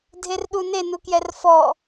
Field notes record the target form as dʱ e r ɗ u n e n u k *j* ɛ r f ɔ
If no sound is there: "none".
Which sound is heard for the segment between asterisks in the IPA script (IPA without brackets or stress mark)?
j